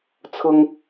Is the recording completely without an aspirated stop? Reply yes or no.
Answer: no